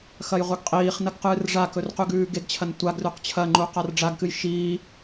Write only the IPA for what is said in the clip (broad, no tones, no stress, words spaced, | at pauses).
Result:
xɐjʁʷɐɡqʼiːχnɐɡ qɨːrʐakɵr qʉɡʉːɡeɡt͡ɕʰɐn tʷaɡrʉq t͡ɕʰɐŋ͡ǃu qarɖ͡ʐaɡkɨj ʃiː